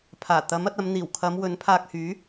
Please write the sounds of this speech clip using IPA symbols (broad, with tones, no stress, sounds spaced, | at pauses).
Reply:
pʰ aː˨˩ t̪ ɐ˨˥ m ɐ˧ t̚ ɐ˨˧ m n̪ iː˨˩ w kʰ ɐ˨˧ m w ɵ˨˥ n pʰ aː˧ k̚ h yː˨˥